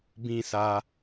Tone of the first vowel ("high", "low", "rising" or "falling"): high